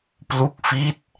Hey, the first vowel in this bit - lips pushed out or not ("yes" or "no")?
yes